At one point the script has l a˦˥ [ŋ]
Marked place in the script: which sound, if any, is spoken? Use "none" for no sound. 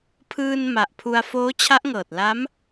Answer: m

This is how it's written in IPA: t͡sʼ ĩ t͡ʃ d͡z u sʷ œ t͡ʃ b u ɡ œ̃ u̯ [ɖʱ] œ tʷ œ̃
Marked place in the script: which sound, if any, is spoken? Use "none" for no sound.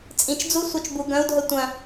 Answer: dʱ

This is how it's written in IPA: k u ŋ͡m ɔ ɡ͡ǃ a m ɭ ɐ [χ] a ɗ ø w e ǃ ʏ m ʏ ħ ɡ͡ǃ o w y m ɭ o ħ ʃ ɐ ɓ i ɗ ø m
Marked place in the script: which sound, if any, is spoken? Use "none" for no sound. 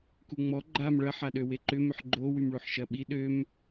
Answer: ħ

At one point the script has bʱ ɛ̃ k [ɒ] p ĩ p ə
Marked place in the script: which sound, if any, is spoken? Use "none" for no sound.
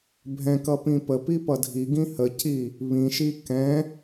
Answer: ʌ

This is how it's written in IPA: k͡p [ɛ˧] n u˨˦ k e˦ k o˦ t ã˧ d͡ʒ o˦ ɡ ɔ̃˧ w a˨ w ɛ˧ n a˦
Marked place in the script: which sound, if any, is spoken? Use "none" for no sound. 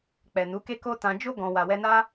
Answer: ɛ˨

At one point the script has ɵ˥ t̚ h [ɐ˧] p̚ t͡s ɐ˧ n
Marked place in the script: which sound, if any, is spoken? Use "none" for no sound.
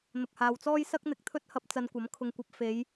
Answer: ɐ˧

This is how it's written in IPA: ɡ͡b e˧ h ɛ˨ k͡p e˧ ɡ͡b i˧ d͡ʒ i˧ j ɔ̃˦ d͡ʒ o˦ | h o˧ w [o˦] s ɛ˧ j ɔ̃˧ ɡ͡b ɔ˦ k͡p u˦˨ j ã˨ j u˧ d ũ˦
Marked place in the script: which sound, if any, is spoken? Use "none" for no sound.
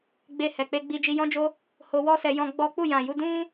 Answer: ɔ˦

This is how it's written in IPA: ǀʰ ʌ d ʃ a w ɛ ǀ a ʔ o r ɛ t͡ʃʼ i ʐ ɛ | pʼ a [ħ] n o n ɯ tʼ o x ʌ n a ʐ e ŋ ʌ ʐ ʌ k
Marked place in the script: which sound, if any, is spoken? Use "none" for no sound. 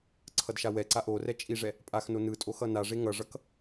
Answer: x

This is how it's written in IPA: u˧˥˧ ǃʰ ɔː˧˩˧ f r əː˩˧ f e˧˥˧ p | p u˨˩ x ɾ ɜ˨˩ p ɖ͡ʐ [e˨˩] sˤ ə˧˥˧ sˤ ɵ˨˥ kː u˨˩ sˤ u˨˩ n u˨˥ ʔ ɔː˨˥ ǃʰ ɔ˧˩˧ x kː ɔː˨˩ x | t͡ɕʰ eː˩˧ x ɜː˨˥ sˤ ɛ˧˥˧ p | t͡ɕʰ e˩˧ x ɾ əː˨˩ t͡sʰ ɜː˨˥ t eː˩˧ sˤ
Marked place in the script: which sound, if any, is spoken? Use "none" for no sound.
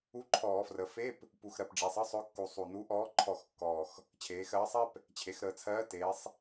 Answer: e˩˧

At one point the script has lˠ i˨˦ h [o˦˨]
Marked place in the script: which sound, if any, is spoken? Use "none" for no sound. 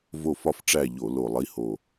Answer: o˨˩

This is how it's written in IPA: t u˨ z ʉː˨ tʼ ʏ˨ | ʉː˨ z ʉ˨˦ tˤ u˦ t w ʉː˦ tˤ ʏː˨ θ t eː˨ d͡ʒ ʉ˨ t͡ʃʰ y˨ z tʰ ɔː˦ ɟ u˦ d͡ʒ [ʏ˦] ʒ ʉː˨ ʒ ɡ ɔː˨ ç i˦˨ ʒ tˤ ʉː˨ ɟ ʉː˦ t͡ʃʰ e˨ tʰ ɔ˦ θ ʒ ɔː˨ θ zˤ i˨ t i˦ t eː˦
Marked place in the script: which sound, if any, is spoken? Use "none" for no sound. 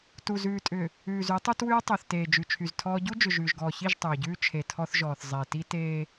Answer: ʏ˨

